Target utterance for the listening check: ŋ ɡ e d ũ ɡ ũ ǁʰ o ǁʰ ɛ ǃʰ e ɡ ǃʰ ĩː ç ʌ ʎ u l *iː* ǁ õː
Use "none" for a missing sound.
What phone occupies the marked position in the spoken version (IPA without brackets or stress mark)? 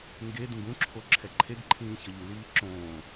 iː